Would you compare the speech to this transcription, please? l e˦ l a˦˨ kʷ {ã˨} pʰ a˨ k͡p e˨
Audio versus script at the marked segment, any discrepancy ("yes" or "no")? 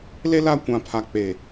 no